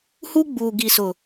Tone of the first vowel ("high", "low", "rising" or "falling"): high